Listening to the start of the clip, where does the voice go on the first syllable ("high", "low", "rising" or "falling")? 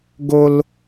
high